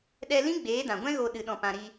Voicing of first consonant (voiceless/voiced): voiced